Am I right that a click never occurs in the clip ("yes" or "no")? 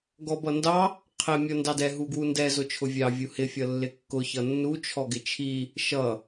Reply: yes